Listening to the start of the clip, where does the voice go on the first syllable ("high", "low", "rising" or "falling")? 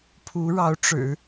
rising